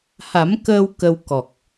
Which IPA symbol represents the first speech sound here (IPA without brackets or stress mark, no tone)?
h